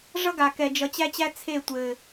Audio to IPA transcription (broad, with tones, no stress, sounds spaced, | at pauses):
ʐ ʌ˦ ɡ a˨ k ɛ˨ d͡ʒ ʌ˨ t͡ɕ æ˦ t͡ɕ æ˦ t͡sʰ e˦˨ tʷ ɘ˨